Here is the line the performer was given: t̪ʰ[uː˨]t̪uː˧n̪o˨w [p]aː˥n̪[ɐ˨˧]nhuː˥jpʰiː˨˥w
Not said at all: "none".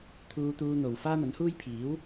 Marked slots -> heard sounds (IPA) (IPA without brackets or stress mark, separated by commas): uː˧, f, ɐ˨˥